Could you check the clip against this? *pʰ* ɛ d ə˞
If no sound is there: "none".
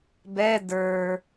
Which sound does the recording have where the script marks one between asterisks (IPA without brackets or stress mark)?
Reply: b